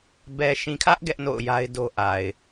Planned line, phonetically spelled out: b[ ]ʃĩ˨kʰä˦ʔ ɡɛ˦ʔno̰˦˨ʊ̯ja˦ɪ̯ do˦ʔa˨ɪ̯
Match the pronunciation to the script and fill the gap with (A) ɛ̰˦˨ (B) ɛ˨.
B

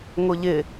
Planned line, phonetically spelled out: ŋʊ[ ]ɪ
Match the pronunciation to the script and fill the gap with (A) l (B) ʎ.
B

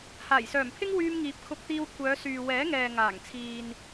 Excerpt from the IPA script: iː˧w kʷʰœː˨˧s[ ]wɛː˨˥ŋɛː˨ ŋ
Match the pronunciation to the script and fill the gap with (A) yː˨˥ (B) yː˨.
B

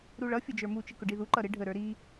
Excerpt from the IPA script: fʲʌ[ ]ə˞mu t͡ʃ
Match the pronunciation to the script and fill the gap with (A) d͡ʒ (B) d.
A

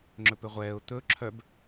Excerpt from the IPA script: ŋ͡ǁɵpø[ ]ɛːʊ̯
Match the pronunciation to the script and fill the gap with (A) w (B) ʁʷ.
B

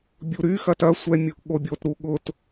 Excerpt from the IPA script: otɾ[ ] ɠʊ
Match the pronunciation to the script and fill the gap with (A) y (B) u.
B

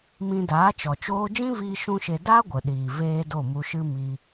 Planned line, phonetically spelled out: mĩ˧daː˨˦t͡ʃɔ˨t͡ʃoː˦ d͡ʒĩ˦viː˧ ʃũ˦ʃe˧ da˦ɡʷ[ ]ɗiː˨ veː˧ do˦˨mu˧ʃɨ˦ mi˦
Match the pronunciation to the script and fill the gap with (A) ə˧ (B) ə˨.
B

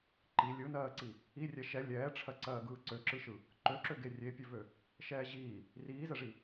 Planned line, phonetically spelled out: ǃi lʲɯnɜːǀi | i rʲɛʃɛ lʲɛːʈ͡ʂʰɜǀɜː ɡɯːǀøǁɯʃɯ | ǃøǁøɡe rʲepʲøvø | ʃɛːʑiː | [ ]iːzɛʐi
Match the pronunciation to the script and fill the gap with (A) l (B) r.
B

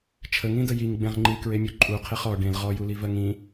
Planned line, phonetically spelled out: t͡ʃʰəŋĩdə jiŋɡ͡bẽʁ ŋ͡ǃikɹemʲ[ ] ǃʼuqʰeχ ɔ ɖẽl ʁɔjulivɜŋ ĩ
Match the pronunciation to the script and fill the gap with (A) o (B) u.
B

